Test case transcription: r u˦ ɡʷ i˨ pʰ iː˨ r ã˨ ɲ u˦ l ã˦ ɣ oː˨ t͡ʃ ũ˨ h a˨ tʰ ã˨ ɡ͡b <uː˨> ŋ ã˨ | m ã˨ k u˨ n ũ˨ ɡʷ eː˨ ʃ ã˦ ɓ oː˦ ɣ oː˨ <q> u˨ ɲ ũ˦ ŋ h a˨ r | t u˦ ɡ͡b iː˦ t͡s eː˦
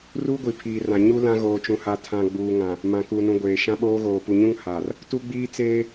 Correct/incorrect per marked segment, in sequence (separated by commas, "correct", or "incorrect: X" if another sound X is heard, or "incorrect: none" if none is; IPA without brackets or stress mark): correct, incorrect: p